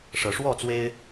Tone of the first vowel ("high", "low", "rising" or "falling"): rising